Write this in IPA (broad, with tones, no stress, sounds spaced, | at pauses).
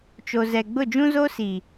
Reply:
t͡ʃ o˨ z ɛ˨ ɡ͡b ʊ˦˨ d͡ʒ ũ˦ z o˦ s i˨